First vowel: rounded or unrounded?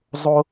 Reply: rounded